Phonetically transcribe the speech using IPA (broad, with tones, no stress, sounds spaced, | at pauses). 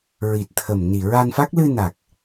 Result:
ɹ i˨˩ t̚ t̪ʰ ə˨˩ m n i˨˩ ɹ a˧ n f a˦˥ k̚ l ɨ˧ n a˨˩ k̚